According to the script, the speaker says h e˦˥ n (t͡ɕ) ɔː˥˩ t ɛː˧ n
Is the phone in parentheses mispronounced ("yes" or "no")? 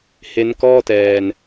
yes